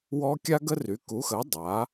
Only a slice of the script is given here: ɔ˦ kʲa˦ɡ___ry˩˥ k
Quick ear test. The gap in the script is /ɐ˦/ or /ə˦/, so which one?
ə˦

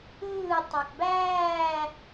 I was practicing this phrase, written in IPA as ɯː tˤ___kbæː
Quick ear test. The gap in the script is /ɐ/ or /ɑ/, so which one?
ɑ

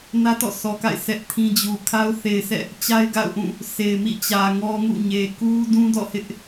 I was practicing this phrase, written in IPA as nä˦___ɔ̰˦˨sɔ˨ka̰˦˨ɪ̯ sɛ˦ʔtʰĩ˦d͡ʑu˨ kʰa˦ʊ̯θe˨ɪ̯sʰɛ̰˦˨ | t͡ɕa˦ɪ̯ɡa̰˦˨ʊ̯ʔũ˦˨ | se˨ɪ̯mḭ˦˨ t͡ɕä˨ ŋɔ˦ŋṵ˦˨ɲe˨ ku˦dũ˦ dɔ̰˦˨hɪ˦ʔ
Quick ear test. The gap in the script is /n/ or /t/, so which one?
t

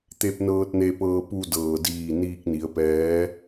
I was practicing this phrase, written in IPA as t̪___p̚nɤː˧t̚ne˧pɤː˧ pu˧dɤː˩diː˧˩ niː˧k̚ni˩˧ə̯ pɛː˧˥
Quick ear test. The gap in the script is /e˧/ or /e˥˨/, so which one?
e˧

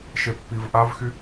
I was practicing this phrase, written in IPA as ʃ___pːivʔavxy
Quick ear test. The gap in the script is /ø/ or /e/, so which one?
e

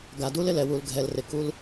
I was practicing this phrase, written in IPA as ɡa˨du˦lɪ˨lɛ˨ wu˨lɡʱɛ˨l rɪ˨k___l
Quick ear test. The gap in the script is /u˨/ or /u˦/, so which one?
u˦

